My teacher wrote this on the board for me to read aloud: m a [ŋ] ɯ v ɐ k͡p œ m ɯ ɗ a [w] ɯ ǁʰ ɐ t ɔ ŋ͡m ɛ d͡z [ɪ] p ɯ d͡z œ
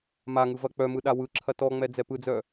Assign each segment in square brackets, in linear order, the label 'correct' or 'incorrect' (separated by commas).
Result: correct, correct, incorrect